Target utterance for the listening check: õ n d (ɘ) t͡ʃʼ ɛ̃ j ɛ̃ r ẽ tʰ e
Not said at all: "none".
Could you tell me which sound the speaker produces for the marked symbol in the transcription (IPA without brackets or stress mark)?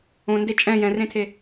e